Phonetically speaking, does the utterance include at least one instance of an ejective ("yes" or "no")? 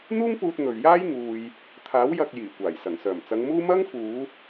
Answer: no